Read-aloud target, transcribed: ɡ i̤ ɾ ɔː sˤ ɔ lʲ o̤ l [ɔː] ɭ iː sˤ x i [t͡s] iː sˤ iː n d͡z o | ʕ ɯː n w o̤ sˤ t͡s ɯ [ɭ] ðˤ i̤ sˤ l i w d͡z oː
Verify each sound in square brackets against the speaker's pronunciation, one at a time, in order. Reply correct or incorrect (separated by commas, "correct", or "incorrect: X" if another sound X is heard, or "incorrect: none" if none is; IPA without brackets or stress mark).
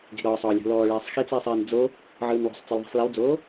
correct, correct, incorrect: l